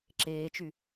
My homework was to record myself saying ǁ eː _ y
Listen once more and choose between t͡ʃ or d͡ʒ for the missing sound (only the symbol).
t͡ʃ